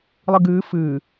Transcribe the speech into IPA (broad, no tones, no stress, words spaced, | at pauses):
lˠɨɡɨː fɨː